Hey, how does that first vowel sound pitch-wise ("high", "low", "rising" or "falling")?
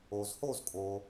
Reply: low